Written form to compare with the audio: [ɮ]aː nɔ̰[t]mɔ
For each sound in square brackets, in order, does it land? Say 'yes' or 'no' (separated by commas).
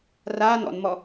no, no